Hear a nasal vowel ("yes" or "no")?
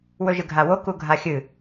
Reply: no